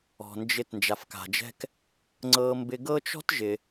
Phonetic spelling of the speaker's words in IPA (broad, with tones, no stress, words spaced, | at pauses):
ɔ̤˩nd͡ʒɪ˧t nd͡ʒa˩fka̤˩d͡ʒɛ̤˧k | ŋ͡ǀɤ˧mbɪ˧ɡɤ˥ t͡ʃɔ̤˥tʒɪ˩